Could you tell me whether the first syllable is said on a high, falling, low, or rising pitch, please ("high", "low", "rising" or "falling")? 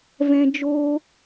high